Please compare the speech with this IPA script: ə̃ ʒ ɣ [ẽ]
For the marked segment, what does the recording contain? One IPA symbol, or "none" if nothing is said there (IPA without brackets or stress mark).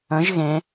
ẽ